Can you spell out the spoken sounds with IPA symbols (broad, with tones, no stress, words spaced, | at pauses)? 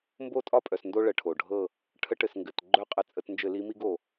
mbo˦˨tʼɒ˦pʼœ˩s ndo˦ɭə˩˧˩ʈʰo˩ɖʱɤ˦˨ | ʈʰə˨˦ʈɘ˩s ŋɡɘ˩˧˩t ɡ͡ǃœ˦˨qʼə˧˩˧ t͡sʼə˧˩˧tnd͡ʒɘ˧˩˧li˨˦mi˦ɡ o˩